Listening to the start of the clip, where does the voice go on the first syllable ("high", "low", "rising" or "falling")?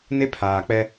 high